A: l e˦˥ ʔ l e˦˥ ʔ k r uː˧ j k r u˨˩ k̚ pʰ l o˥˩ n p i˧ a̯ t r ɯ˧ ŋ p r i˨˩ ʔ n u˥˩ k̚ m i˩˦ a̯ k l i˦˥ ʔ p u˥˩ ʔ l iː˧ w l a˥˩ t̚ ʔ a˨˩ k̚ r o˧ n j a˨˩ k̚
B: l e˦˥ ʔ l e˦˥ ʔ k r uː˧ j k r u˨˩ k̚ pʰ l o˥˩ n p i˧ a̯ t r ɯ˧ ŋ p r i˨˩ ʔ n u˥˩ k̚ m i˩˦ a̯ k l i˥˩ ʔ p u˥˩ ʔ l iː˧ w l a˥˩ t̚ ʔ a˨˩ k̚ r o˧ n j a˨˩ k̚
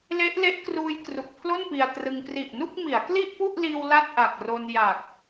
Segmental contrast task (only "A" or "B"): B